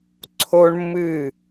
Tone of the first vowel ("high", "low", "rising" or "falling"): high